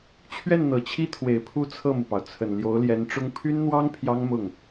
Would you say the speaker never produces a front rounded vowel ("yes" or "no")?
no